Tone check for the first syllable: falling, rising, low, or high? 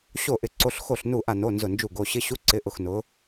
falling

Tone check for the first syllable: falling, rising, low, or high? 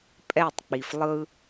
falling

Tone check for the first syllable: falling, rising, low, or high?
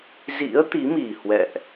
rising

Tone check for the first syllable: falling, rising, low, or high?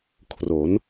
rising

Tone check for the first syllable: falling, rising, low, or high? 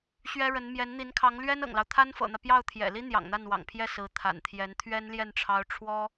high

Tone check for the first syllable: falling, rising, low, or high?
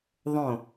falling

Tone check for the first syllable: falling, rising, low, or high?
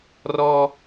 high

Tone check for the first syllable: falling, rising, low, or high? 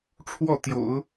falling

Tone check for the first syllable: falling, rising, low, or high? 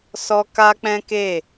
high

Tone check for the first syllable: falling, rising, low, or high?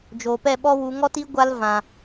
low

